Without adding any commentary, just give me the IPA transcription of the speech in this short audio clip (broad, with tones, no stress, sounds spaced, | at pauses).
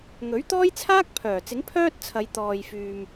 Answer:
ŋ ɵ˨˥ ɥ t̪ ɔː˥ j t͡sʰ aː˥ k̚ pʰ œː˨˩ t͡s ɪ˨˥ ŋ pʰ œː˥ t̚ t͡sʰ ɐ˨˧ j t̪ ɔː˨ j f yː˨ m